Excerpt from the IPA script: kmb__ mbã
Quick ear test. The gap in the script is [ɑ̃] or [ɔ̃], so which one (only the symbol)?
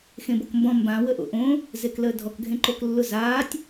ɔ̃